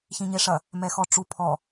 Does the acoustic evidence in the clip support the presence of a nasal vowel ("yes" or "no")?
yes